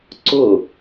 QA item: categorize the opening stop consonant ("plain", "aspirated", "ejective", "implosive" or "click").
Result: click